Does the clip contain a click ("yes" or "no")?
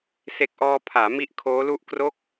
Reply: no